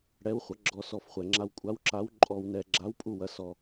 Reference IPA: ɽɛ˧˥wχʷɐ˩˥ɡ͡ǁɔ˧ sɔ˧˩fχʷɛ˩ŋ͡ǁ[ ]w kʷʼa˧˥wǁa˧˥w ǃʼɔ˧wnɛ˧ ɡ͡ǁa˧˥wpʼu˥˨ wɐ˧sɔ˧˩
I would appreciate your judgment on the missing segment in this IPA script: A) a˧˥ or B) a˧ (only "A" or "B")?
B